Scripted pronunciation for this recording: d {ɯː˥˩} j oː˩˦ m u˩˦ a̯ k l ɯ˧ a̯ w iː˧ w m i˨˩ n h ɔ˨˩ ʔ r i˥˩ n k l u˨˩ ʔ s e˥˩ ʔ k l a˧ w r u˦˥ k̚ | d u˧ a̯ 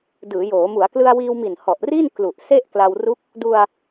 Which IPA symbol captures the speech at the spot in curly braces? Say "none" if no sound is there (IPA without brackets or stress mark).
ɯː˩˦